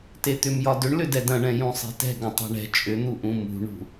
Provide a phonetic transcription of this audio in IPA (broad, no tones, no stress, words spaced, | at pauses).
tet̪ʏmjɒdʏɳ lʏdɛdɐ̃ɳɛ̃ jũsˤe̤tɛ̤ ɡɐ̃tˤɛ̤ɳɛ̤ t͡ʃʼʏn̪uʔũ mṳɳṳ